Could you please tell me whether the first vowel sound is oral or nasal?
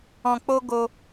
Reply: nasal